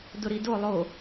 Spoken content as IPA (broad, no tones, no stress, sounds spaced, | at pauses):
d ʊ ɾ i d o lˠ o